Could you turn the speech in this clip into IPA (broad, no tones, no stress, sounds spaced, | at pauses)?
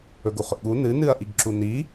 ɵ ɡ u χ ɵ ʔ ɠ u n ɨ n ɨ ɐ̯ ʔ i ɡ ǁ u n i